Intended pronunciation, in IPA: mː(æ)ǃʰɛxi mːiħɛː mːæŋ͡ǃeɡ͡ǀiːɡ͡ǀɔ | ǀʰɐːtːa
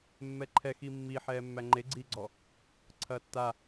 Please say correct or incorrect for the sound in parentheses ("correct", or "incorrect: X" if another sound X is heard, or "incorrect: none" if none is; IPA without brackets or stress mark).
incorrect: ɛ